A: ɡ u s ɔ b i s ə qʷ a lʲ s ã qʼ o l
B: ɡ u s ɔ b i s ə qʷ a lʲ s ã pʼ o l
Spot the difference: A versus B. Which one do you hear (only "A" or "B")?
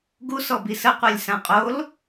A